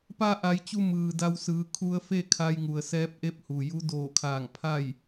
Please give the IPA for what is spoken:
pa˧ʔa˩˧jt͡ɕu˧ mɯː˩da˧wsɯː˩˧ kʰu˧ə̯fe˥˨kʰa˧jŋu˩ə̯ sɛː˧˥p̚ʔe˧˥p̚hu˩ju˧˥ doː˧˩kʰaː˧˩ŋpʰa˥˨j

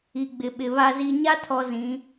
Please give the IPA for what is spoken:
i˨ɡ͡bɪ˨ɓɪ˨ βa˨zi˨ɲa˦tʰɔ˨ zĩ˨˦

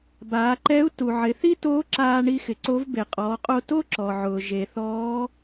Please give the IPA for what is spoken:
baː˩˧ǃɛ˧˥u̯tu˩ ʕɪ˩˧θi˥toː˧˥ ǁaː˧ɳi˧xɪ˩ ǀo˧˥v be˩qʼɔː˩˧qʼo˧ to˥ ǁɔ˩ʕʊː˩ ʒe˩θɔː˧˥

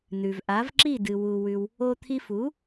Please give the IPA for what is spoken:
nʉ˨v ʔa˨˦vǁi˦˨dɨ˨ wu˧wʉ˧w | o˧t̪ʰi˧fu˨˦

